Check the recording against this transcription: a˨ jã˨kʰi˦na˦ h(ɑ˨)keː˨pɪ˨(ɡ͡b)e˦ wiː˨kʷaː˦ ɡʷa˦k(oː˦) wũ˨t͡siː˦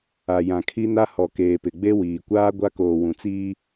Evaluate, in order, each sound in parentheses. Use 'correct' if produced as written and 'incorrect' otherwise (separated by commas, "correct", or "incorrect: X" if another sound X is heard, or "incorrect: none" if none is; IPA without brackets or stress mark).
incorrect: ɔ˨, correct, incorrect: oː˨